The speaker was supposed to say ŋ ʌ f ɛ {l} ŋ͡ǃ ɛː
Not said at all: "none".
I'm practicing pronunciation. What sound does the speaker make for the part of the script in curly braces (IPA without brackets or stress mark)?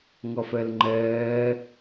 l